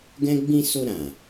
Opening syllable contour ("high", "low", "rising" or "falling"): high